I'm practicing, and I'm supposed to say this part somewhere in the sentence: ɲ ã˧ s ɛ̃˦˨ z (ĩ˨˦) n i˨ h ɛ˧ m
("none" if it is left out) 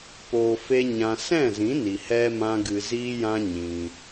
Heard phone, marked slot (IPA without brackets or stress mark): ĩ˨˦